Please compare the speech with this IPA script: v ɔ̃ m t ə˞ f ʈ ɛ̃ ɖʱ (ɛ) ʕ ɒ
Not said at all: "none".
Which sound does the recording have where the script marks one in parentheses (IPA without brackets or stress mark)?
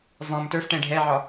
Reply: ɛ